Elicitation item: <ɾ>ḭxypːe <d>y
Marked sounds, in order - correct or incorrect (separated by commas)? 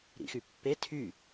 correct, incorrect